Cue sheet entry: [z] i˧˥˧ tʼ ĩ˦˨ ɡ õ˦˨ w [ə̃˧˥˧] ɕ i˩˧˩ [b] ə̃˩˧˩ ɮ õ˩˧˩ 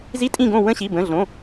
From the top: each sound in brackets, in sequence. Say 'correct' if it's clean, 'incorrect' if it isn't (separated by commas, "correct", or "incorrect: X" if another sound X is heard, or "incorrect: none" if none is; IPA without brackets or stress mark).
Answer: correct, correct, correct